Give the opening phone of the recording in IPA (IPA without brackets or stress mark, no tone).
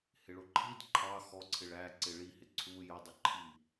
h